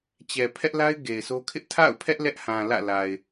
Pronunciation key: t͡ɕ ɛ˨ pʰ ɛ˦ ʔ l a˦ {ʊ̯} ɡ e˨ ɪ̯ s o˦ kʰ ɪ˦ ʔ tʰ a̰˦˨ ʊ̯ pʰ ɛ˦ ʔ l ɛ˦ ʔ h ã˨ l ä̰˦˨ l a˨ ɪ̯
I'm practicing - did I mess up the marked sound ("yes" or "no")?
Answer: yes